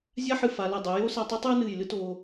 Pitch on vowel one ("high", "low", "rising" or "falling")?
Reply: high